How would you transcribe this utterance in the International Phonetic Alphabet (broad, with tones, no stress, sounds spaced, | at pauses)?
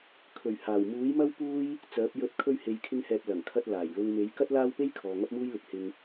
kʰ ɵ˨˩ ɥ h aː˨˩ w m uː˨˥ j m ɐ˥ w p uː˥ j | t͡s œː˨˥ p̚ j ɵ˨˥ t̚ kʰ ɵ˧ ɥ h e˨ j kʰ ɪ˧ ŋ h ɛː˨ p̚ l ɐ˨˩ ŋ kʰ ɐ˧ t̚ l aː˨˩ j l ʊ˧ ŋ m e˨˥ j k ɐ˥ t̚ l aː˥ w p e˥ j kʰ ɔː˨ ŋ ɐ˥ p̚ m uː˥ j l ɪ˨ k̚ h ɪ˧ ŋ